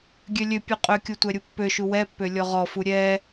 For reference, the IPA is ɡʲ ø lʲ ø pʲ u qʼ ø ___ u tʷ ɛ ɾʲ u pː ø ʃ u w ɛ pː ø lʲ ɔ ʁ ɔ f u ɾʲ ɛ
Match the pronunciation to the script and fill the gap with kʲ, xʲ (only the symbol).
kʲ